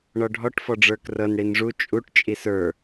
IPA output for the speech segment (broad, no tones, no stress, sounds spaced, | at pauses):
ɳ ɔ ɖʱ ɔ ʈ f ɔ ɖ͡ʐ ə˞ k r ɤ n ɽ i n ʐ u t͡ʃʼ u ʈ t͡ʃʼ i s ə˞